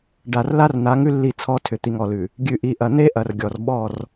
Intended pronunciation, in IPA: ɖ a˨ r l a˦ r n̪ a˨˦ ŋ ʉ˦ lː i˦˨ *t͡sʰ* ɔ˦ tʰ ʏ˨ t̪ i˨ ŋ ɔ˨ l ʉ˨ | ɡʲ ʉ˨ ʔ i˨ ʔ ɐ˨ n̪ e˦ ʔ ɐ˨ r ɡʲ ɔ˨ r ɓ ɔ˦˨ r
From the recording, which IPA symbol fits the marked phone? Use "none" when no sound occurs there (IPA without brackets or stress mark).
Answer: t͡sʰ